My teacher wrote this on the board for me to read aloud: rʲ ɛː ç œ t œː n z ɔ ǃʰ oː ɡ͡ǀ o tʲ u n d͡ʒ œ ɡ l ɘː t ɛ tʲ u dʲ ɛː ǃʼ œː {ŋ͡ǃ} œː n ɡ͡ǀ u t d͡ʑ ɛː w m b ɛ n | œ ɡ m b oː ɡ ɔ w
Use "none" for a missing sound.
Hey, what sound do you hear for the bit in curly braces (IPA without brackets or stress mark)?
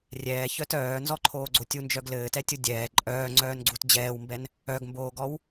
ŋ͡ǀ